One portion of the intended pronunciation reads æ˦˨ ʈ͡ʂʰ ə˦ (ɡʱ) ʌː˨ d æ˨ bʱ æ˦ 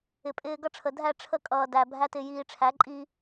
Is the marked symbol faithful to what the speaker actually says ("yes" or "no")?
no